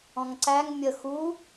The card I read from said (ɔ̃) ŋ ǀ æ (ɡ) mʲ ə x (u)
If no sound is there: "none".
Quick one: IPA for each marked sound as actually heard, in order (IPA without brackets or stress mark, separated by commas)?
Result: ɔ̃, ŋ, u